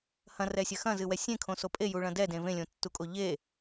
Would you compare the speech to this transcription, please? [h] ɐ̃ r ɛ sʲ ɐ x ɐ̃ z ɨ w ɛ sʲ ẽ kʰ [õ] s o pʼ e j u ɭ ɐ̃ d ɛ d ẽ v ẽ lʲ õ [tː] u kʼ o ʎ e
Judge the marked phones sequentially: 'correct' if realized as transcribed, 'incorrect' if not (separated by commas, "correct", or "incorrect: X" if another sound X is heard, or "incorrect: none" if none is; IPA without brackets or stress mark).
correct, correct, correct